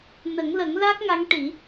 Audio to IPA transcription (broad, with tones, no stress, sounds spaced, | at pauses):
n ə˨˩˦ ŋ l ə˨˩˦ ŋ l a˦˥ k̚ ŋ a˧˥ ŋ ʈ i˨˩˦